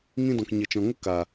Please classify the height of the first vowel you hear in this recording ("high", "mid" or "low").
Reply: high